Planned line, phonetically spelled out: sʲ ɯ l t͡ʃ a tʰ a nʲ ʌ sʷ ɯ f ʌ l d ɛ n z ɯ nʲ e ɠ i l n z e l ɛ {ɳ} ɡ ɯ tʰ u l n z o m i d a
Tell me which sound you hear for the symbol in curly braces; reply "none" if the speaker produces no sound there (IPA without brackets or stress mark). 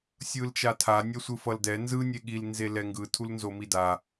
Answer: ŋ